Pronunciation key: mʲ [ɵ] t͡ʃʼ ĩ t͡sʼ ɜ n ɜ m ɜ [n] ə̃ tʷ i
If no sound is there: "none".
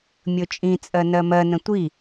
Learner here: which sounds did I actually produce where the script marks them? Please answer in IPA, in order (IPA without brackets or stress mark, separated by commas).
ɵ, n